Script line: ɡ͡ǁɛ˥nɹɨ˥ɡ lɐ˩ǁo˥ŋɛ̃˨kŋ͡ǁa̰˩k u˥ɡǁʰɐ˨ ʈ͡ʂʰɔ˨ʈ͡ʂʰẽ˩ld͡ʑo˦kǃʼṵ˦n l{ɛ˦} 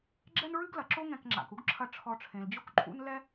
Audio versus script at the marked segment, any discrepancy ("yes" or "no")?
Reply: no